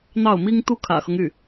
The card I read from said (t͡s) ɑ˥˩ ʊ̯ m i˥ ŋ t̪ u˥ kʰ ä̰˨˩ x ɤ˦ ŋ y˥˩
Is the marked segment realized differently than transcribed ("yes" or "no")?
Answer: yes